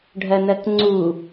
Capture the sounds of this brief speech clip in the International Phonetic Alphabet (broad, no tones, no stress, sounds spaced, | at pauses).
ɖʱ ɜ n̪ ɜ k ŋ͡ǀ u